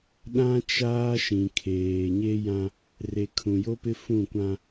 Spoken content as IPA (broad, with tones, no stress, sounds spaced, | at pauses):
ɗ ã˦ t͡ʃ aː˦ ʃ ĩ˨ kʰ eː˨ ɲ e˦ j ã˦ | r e˨ kʰ ũ˨ j o˦ p ɪ˦ f ũ˦˨ kʷ ã˦